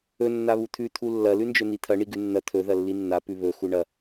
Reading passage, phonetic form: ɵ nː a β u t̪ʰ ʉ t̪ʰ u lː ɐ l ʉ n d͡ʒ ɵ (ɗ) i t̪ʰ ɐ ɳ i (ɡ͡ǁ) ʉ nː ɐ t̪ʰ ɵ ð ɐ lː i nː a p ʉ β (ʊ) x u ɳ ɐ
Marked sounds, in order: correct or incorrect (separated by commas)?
incorrect, incorrect, incorrect